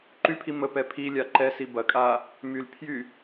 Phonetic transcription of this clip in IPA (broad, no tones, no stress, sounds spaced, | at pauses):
ǃ y pʰ i m ə p ɛ pʰ i lʲ a ǃ ɛ s i b ɐ kʼ a | m y l pʰ j y